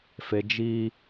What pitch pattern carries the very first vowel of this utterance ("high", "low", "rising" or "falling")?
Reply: high